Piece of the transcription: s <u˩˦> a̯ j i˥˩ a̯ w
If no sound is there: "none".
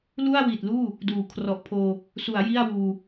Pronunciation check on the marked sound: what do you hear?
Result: u˩˦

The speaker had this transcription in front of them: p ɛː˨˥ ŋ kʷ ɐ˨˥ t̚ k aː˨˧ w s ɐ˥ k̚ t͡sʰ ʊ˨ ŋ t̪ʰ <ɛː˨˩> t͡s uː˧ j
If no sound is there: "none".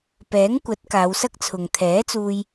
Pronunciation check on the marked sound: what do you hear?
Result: ɛː˨˥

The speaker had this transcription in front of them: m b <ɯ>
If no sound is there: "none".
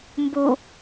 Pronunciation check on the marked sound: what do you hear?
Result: u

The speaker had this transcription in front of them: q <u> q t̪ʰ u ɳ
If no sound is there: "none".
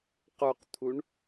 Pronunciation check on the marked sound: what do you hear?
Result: u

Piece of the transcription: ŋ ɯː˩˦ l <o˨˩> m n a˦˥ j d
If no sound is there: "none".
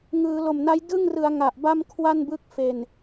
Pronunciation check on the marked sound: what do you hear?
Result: o˨˩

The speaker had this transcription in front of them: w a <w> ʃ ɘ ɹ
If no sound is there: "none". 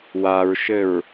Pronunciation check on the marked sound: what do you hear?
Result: ɹ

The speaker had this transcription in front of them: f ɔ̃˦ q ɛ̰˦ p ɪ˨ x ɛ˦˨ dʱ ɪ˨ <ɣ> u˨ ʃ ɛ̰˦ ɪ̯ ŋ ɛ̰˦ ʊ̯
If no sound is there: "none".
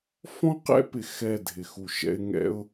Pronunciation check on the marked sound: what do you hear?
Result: x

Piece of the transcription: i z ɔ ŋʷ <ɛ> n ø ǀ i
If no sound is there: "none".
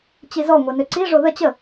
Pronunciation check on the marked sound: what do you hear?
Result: ɛ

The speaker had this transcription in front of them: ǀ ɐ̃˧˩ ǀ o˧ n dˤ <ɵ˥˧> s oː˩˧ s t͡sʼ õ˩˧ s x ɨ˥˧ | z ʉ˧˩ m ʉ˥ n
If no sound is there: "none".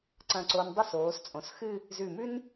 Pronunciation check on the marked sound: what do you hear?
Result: ɵ˥˧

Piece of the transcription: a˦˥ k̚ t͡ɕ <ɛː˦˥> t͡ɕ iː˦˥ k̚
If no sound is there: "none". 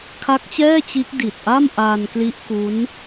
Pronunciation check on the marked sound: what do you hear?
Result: ɛː˥˩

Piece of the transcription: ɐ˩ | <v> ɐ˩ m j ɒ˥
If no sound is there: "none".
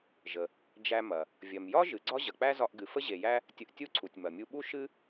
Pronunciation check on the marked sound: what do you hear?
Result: vʲ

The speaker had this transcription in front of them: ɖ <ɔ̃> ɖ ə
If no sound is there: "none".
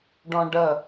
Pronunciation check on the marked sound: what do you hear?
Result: ɔ̃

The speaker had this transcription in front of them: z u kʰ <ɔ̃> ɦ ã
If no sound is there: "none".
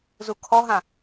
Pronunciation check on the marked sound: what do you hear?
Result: ɔ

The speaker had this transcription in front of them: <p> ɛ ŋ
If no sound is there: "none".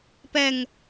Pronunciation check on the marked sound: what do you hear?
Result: p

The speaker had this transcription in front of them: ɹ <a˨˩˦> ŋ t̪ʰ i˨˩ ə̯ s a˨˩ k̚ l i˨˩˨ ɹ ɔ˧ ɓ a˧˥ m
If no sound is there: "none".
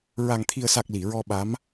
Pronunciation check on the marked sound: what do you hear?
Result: a˨˩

